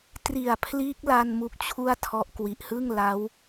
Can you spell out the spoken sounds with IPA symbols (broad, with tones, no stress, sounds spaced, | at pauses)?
t r i˨˩ a̯ pʰ l iː˦˥ k̚ l a˧ n m u˦˥ k̚ t͡ɕʰ u˥˩ a̯ tʰ ɔ˦˥ ʔ k w i˨˩ ʔ h ɯ˥˩ ŋ l a˦˥ w